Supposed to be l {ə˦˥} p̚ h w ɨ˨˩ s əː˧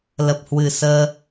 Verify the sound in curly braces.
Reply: incorrect: ə˨˩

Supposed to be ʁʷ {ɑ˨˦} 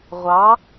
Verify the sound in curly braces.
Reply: correct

